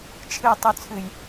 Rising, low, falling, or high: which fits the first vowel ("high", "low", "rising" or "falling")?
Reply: low